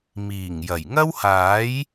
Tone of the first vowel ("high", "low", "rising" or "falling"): low